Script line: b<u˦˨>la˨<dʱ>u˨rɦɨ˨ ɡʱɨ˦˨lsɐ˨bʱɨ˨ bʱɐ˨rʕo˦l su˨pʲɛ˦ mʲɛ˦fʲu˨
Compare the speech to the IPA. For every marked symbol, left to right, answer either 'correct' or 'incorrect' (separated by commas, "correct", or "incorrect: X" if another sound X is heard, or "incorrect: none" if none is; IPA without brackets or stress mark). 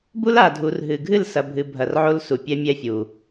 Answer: incorrect: u˦, correct